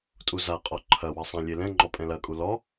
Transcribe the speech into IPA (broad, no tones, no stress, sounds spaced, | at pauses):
tʼ u z a qʼ ɔ ǃʰ ɐ w ɐ sˤ ã lʲ e l ɛ̃ ŋ͡ǃ ɔ pʼ ɛ̃ l ɐ kʼ u l ɔ